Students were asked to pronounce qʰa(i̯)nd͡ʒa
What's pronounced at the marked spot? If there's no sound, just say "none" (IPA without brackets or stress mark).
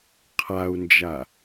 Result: u̯